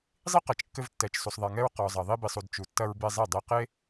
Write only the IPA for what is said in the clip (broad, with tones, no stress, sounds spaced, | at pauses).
zˤ i˦ q ɛ˨ t͡ʃ kː ɘ˧ v tː ɛ˨ t͡ʃ s u˨ sˤ ðˤ e˨ ŋ ɛ˧ ɹ q ɔ˨ zˤ ɐ˨ ðˤ i˧ b i˨ sˤ u˨ d t͡ʃ u˨ tː ɐ˧ ɹ b e˧ zˤ i˦˨ dˤ i˧ q e˦